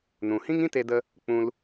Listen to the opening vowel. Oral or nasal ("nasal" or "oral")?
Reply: nasal